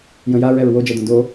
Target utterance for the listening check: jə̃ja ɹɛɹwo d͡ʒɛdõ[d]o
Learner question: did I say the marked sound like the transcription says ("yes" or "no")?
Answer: yes